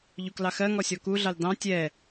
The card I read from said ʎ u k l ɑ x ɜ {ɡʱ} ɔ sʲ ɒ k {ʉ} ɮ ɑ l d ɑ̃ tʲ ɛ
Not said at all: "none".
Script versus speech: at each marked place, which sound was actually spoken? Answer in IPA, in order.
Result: ŋ, u

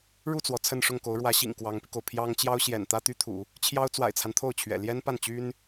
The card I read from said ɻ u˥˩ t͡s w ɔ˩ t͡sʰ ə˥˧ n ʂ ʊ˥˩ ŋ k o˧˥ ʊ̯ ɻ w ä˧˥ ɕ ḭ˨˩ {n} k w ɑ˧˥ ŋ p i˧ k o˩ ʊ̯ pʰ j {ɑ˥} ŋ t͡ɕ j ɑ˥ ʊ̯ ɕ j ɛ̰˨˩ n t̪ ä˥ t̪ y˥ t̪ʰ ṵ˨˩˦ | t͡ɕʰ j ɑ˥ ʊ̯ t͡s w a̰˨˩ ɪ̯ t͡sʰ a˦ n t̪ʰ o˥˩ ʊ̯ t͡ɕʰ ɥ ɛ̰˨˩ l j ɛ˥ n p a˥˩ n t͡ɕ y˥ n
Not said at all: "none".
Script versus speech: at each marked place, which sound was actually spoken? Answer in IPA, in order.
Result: ŋ, ɑ˥

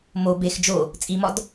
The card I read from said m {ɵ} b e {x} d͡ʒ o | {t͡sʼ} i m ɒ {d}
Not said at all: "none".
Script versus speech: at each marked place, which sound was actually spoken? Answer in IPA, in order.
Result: o, x, t͡sʼ, d

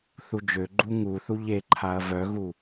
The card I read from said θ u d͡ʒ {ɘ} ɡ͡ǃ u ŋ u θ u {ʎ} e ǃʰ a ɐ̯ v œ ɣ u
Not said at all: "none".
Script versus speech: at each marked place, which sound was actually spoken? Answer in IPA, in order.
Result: ø, ʎ

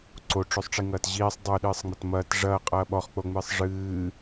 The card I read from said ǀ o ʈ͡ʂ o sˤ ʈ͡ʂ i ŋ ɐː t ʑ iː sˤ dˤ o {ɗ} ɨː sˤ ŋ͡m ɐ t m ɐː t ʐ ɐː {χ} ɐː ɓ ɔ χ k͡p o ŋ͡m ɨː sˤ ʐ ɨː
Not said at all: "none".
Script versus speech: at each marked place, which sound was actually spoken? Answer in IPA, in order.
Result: ɗ, qʼ

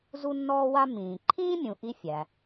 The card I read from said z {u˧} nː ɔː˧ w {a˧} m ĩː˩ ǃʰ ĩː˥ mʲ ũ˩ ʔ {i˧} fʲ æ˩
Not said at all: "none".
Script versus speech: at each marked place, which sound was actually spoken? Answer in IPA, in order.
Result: u˧, a˧, i˧

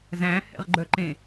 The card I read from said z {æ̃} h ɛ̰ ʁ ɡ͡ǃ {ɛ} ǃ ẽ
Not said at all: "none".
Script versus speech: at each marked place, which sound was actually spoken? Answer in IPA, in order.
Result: æ̃, œ

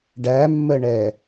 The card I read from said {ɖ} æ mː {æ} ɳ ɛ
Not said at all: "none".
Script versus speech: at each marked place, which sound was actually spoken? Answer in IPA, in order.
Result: ɖ, ə

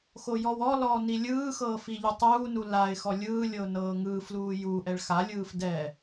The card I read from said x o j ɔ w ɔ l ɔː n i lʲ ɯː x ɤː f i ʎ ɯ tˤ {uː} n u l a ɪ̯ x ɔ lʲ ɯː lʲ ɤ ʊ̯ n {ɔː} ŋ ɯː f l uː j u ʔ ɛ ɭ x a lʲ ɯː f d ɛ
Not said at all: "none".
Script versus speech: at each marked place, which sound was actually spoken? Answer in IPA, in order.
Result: uː, ɤː

